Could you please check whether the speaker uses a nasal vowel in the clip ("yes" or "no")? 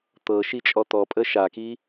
no